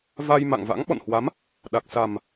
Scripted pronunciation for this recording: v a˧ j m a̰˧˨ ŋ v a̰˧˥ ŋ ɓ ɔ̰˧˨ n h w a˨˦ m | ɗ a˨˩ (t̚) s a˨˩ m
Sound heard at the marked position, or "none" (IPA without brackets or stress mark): k̚